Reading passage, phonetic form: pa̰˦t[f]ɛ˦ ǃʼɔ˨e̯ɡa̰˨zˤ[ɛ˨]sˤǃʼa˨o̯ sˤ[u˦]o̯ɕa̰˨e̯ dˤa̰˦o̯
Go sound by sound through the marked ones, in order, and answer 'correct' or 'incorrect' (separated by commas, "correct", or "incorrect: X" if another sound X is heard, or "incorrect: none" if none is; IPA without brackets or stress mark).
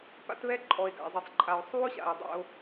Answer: incorrect: β, correct, correct